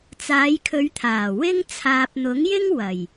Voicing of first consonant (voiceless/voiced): voiceless